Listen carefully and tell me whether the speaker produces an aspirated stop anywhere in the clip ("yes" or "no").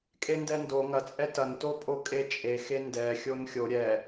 no